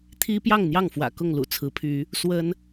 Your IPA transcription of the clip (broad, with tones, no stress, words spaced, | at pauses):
t̪ʰi˦pjɑ˥˨ŋn̪jɑ˥˨ŋfwä̰˨˩ kʊ˥˨ŋlṵ˨˩t͡sʰɹ̩˨˦ pʰy˨˦ | swə˦n